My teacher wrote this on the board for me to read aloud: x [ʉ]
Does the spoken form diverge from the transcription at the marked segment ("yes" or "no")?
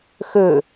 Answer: yes